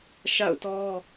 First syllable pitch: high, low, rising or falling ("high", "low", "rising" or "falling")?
falling